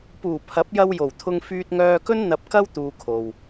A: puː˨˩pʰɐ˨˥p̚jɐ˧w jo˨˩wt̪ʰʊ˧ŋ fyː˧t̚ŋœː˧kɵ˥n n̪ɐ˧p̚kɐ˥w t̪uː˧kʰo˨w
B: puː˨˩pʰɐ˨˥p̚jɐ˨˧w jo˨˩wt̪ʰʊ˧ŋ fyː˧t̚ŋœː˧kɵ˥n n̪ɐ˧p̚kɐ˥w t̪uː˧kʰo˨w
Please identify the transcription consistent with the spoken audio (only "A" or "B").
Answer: A